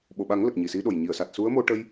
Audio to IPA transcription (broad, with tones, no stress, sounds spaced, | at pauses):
ɓ o˨˩˨ ɓ a˨˩˦ ŋ l ə˨˩ k̚ ɲ i˨˩ s i˧˥ ɗ o˨˩ j ɲ i˨˩˨ ə̯ s a˨˩ t̚ s u˧˥ ə̯ m o˧ ʈ ə˧ j